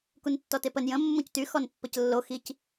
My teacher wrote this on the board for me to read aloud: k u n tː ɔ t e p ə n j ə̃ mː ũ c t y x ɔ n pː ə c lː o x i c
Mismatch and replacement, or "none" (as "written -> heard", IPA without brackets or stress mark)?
none